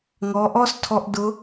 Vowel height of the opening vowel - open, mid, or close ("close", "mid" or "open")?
mid